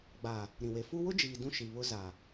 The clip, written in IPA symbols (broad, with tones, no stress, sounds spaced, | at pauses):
ɡ͡b a˨ | ɾ ĩ˨ w e˨ f u˦ w ʊ˦ d͡ʒ iː˨ d ũ˦ ʃ i˨ β ʊ˦ z a˨